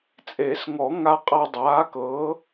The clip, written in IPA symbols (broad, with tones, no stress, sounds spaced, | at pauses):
t͡sʼ e˨˩˦ s ŋ ɔ˨˩˦ ŋ a˧ qʼ a˧ dˤ aː˩˥ k ɤː˩˥